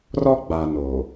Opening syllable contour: high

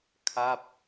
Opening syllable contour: falling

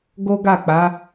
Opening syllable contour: high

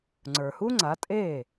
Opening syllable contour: low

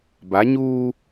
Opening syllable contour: rising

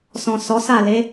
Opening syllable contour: low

